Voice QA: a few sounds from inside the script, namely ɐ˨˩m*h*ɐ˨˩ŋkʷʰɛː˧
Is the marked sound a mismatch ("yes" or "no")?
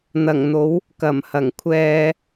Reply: no